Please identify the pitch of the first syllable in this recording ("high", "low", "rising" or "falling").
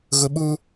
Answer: high